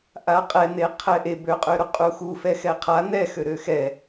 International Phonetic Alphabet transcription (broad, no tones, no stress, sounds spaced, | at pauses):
ʔ a qʼ ɛ n̪ e qʰ ɛ ʔ e b ø qʼ ø ɾ u qʼ u x u f ɛ x ɛ qʰ a n̪ ɛ x ø ɾ ø x ɛ